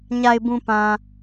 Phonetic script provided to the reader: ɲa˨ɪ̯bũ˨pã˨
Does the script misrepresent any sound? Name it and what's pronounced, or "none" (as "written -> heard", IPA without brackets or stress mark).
none